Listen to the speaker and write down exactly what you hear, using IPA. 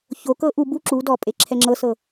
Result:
ç o k ɤ ʔ u b u ǁ u d ɔ pʼ e ǁʰ ɛ ŋ͡ǁ ɤ s ɤ

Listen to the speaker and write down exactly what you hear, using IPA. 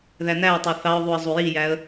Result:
ð æ n æ ʊ̯ tˤ o θ ɑ ʊ̯ ðˤ u ə̯ zˤ u j i j æ ə̯

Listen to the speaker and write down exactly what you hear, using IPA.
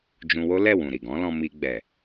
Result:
d͡ʒ ũ˧ w o˦ l ɛ˦˨ w ũ˨ ɾ i˨ ɡ ɔ̃˨˦ l ɔ̃˧ m i˧ ɡ͡b ɛ˨

